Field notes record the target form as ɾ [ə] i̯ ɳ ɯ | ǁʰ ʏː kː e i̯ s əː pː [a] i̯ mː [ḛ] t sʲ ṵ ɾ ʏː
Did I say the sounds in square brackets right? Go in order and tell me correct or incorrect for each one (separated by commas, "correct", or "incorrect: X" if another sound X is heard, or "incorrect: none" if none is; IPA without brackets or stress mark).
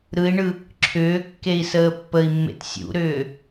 incorrect: ɯ, incorrect: ə, correct